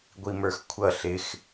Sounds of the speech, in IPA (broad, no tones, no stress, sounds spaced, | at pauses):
ɡʷ i m ə˞ x kʷʰ ʌ ɬ ɪ x